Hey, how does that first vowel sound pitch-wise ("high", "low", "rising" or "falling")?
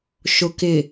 low